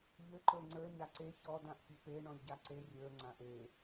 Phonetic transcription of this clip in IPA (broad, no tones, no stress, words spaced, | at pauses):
ʎɘ ǃə˞ŋ͡ǀə˞ ɲaǀe çɔd ãʔpʲɘpe ɳɔ̃lʲɟaǀe rʲə˞ ŋ͡ǀãʔe